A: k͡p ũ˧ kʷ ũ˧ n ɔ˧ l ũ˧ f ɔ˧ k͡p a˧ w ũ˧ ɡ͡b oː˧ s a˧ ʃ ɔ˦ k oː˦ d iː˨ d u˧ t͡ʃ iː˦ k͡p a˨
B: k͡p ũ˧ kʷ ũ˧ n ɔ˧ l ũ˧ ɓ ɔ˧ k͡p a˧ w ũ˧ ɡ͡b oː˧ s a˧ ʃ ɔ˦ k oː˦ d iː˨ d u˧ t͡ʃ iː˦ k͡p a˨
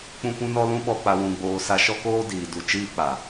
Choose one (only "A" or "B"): B